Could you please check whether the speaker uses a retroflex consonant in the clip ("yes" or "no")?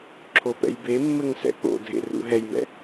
no